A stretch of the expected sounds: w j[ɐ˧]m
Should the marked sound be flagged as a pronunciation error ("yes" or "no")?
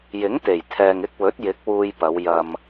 no